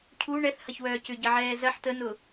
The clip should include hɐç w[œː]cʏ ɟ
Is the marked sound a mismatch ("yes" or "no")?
no